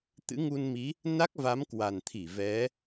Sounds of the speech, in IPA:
t̪ ɨ̰˧˥ ŋ u˧ n m i˨˦ | n a˦˥ k̚ v a˨˦ m k w a˨˩ n t̪ʰ i˧˩ v ɛ˨˦

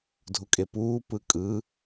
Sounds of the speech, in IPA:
dʱ u kʼ e p uː p ɯ kʼ ɯ

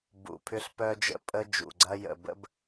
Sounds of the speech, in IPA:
b ṵ˨ pʰ ʏ˦ ɬ p œ˦ d͡ʒ ə̰˦ pʼ ə˦ d͡ʒ ṵ˨ ɡ͡ǀ ɐ˦ j ə̰˨ b ə̰˦ b

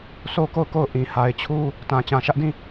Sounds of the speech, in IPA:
s o˦ k o˦˨ ʊ̯ k o˦˨ ʊ̯ ʔ ĩ˨ h a˨ ɪ̯ t͡ɕʰ u˦ | t ã˨ t͡ɕ ã˨ ʃ ä˦ ʔ d ĩ˦˨

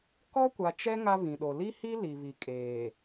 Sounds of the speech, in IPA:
k ɔ˦ kʷ a˨ t͡ʃ ɛ˦ ŋ a˦ β ĩ˨ ɗ o˨ l i˦ h i˦ l i˨ β i˨ kʼ eː˨

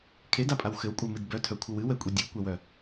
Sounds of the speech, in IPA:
kʰ e d a pʼ a w x ɘ w kʷʼ œ m ɨ d b œ tʰ œ kʷʰ ɘ w ɨ w ɛ kʷʼ i dʲ ɨ w kʷ ɛ w œ

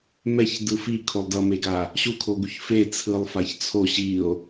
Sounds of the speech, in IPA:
m ɛ ç d ɯ f i kʰ o lˠ d ʌ m e ɡ a | ɕ u kʰ o ɡ u ç f e t͡sʰ ɯ lˠ f a ç t͡sʰ o ɕ i o̯

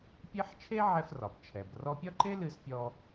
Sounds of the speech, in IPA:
pʲ e˥ ħ t͡ʃʰ e˥ ʕ ɛ˧ f r ɒ˩ b t͡ʃʰ ɛ˩ b r ɔ˧ pʲ ɒ˥ ǃ e˥ l ɨ˧ s pʲ ɔ˧

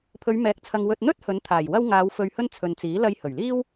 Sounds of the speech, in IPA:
pʰ ɵ˨˧ ɥ m ɛː˨˥ k̚ t͡sʰ ɐ˨ ŋ w ɵ˨ t̚ n̪ ɵ˥ t̚ h ɵ˨˥ n t̪ʰ aː˨˩ j w ɐ˥ w ŋ aː˨˧ w f ɵ˨ ɥ h ɵ˧ n t͡sʰ ɵ˨ n t͡s iː˨˥ l ɐ˧ j h ɵ˨˩ ɥ l iː˥ w

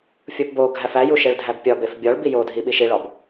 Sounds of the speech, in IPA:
fʲ o p b o ɡʱ æ f æ j u ʃ e ɭ dʱ æ b pʲ ɒ b e f bʲ ɒ ɭ b i j o dʱ i ɓ i ʃ i ɭ ɒ b

